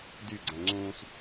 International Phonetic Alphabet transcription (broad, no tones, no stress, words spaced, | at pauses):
dy ɡ͡ǀæ̃ŋ͡ǀũːs